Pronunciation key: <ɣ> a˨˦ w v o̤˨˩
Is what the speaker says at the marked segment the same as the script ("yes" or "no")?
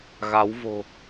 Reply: yes